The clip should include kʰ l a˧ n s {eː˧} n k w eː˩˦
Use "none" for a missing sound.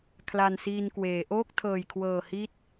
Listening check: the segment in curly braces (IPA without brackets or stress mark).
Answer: iː˧